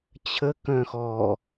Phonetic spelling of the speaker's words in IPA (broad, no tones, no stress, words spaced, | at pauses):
t͡ɕʰə kœ̃xɔ